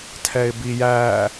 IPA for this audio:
tʰ ɛ ɪ̯ b i j æ

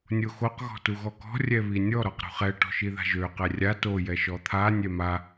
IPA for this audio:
nʲ o x o q ɣ ɔ̤ t u ɣ ɔ k ɔ̤ rʲ ɛ β i nʲ ɔ ɾ ɔ q ɾ ṳ χ ɛ ʈ ɔ̤ ʃ i ð a̤ ʒ ø q ɛ rʲ a t o j ɛ ʃ ɔ t̪ʰ a nʲ ɛ m a

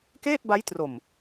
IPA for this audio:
k eː˥˩ t̚ b a˦˥ j t r o˨˩ m

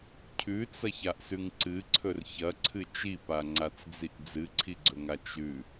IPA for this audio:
cʰ ʉ t͡s ɐ ç a ʔ s ʉ ŋ ǀ ɨ ǀʰ ɵ r ç ɐ ǀʰ ɨ t͡ʃ i p a ŋ͡ǀ a t͡s d͡z i ʔ d͡z ɨ ǀʰ i ɡ͡ǀ ɵ ŋ a t͡ʃ ʉ

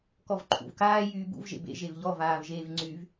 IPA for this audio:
k ɔ v ǃʰ ṵ v k aː j yː b ṵ v ʒ ḛ b ḛ ʒ e v ʎ ɔ v aː v ʒ eː v ŋ͡ǀ y v

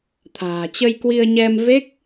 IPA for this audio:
t̪ʰ a̤ː˨˩ t͡ɕ ə˧ j k w i˧ ə̯ ɲ ɛ˧ m v e˦˥ k̚

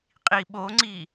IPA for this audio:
qʼ i ɓ o ŋ͡ǀ i

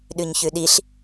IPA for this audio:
ɗ ʉ ɲ ç ʉ ɗ i ɬ

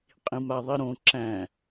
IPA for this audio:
qʼ ĩ m a ðˤ i ɾ õ ǁ æ̃

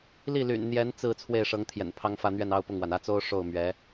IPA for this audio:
l i˥˩ l y̰˨˩ n n̪ j ɛ˧˥ n t͡s ɹ̩˥˧ t͡sʰ w e˥˩ ɪ̯ ʂ ɤ˧˥ ŋ t̪ʰ j ɛ̰˨˩ n pʰ ɑ˥ ŋ f ä˥˧ n̪ ɥ ɛ˥˩ n ɑ˥ ʊ̯ p ʊ˥˩ ŋ w a˩ n ä˥˩ t͡s o˥ ʊ̯ ʂ o˥˩ ʊ̯ m ɥ ɛ˧˥

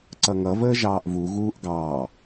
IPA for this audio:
ǀ ʌ ŋ ʌ v əː ʒ ɑː ʔ v u ɣ uː ʔ ɡ ɑː

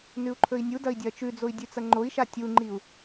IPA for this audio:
n ʉ u̯ ǃʰ ɵ i̯ nʲ u d ɐ i̯ dʲ ɐː t͡ʃ ʉ d͡z o i̯ dʲ ʉ t͡s ɐ ŋ͡ǃ o i̯ ʃ a tʲ u ŋ͡ǃ i u̯

